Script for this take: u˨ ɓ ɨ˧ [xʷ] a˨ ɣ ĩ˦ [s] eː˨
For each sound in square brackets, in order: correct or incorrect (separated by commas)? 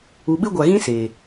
incorrect, correct